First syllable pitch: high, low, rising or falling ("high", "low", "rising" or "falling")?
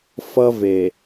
high